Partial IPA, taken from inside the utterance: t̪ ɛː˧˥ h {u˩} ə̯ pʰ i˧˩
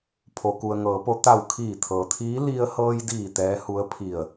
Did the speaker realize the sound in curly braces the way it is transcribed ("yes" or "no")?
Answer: no